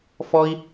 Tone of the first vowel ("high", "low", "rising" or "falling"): high